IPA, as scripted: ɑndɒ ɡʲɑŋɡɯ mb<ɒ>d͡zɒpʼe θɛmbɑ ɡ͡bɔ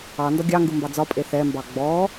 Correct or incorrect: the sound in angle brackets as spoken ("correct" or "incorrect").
incorrect